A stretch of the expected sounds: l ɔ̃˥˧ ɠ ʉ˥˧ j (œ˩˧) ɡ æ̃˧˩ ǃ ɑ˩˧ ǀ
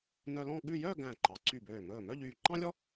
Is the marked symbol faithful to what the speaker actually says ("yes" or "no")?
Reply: no